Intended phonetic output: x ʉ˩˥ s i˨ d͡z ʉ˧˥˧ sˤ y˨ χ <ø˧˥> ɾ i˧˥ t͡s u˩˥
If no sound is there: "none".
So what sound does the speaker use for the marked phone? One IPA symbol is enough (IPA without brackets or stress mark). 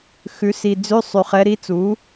ɛ˧˥